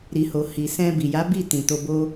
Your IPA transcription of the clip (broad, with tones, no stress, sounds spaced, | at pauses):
ɾ i˨ h o˨ h i˨ s ɛ̃˧ b i˨ j a˨˦ b i˦˨ t ĩ˨ t o˧ b o˦